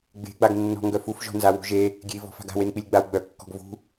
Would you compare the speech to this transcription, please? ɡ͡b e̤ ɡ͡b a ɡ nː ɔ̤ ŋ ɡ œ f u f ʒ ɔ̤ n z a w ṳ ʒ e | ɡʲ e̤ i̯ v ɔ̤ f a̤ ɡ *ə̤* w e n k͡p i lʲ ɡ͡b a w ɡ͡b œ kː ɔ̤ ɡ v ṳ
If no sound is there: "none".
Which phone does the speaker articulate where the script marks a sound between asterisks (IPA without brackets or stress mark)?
a̤